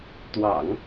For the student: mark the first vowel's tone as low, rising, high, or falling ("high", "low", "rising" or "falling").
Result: low